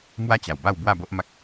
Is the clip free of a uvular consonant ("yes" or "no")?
yes